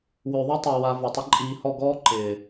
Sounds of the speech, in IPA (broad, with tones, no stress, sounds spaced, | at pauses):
w ø˨ ðˤ ɪ˦ tˤ e˨ w a˧ v a˨ tˤ ə˦ ǃʼ iː˧ h ɔ˦˨ ɡ ɔː˦ ǃ ɪː˨